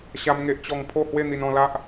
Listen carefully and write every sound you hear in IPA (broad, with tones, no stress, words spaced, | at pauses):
ɕa˦mŋe˦ʔt͡ɕɔ˥˧ŋ pʰo˥˧hwe˥˧ n̪i˧nɔ̃˥˧la˦ʔ